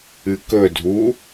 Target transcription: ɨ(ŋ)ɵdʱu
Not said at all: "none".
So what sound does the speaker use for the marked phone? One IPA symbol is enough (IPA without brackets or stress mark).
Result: k